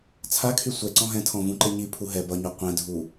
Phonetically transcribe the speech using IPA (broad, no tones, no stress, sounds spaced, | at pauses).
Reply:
t͡sʰ a kʰ y sʷ ɛ ǀ ɔ̃ ɦ ɛ̃ tʰ ɔ̃ v ũ ǃ e ɲ i pʰ u ɦ ɛ b ʌ ɲ u qʷ ɛ̃ dʱ u